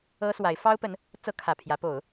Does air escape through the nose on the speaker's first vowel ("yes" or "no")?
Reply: no